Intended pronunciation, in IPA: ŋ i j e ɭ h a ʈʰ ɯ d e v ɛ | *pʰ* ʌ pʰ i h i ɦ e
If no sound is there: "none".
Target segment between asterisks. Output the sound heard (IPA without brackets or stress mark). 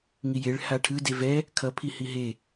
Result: kʰ